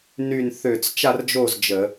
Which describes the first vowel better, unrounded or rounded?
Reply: rounded